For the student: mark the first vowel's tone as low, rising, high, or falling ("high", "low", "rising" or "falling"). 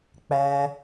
low